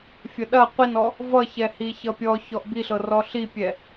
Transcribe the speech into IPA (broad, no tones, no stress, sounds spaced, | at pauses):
fʲ ɐ ɗ ɐ qʷ i n ɔ | v ʌ ç ɛ h i ç ʌ pʲ ɔ ç ɔ ʔ b i ɬ ɤ r ɔ ɬ i pʲ ɛ